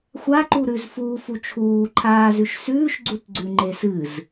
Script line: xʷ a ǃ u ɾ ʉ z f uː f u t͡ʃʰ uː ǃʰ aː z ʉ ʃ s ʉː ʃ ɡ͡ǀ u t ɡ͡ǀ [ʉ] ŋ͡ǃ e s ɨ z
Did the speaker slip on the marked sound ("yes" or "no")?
no